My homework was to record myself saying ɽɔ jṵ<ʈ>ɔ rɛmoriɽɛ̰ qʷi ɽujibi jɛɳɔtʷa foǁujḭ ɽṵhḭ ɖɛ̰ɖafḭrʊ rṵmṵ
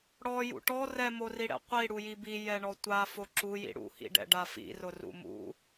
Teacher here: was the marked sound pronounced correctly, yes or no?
yes